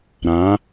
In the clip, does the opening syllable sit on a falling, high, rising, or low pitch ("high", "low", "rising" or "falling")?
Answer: rising